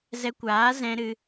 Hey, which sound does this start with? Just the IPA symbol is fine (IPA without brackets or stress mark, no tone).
z